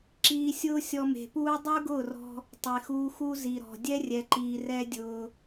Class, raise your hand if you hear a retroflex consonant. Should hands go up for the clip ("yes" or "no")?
no